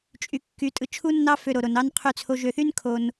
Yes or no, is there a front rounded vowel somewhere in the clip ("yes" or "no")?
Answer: yes